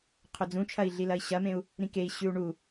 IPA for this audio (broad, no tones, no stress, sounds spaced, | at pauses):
qʰ ɵ d͡z ũ t͡ʃʰ ɐ i̯ ɮ i l ɐ i̯ ɕ ɐ m ẽ u̯ | ɾ ĩ k e i̯ ɕ ʉ u̯ ɳ u